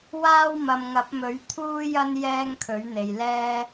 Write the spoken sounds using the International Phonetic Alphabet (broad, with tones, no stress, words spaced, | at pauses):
waː˥w mɐ˨mŋɐ˨˥p̚mɵ˨˥ɥ t̪ʰuː˥jɐ˥n jɛː˥ŋkʰɵ˨˥ɥn̪e˨jlɛː˥